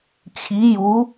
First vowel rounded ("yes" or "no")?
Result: no